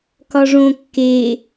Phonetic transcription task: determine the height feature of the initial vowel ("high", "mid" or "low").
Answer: low